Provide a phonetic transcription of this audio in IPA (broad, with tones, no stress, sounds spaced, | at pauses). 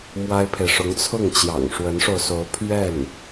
m w a˥ ɪ̯ pʰ e˨ ɪ̯ ʂ ʊ˧˥ ŋ t͡sʰ ʊ˥˩ ŋ t͡ɕ j ɑ̰˨˩ ŋ ʂ w ə˧˥ n ʂ o˧ ʊ̯ s o˧˥ ʊ̯ pʰ ɥ ɛ˥˩ n